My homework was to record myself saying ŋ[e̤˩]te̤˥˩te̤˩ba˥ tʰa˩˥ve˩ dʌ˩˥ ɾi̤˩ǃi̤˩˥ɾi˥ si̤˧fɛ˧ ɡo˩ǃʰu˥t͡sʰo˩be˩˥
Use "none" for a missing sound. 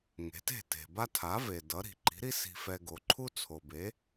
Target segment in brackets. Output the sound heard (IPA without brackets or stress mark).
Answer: e̤˩˥